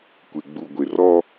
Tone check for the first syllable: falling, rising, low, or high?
low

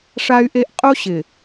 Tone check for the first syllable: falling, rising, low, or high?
high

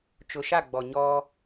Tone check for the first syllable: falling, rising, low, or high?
low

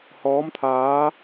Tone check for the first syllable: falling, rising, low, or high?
rising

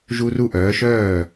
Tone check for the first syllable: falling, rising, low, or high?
high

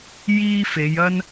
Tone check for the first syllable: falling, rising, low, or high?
high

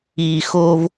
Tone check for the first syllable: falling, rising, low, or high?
low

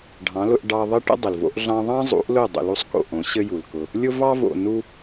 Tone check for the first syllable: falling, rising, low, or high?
rising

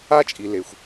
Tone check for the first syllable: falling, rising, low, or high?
high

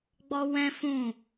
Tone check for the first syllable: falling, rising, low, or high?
high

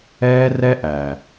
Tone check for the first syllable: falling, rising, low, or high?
high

